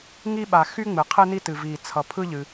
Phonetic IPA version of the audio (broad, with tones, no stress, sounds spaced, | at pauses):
ŋ i˥ ɓ a˩ x y˥ ŋ͡m ɨ˩ qʰ ɨ˥ n i˥ t ɨ˩ v i˩ t͡sʰ ʌ˩ pʰ ɯ˥ ʎ ɨ˩